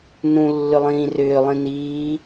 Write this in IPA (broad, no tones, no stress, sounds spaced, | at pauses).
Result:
n ũ lː ʏ lˠ ĩː r ʏː lˠ ĩ n iː